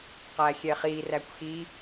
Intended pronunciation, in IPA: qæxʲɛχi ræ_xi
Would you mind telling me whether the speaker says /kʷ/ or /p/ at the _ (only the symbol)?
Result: kʷ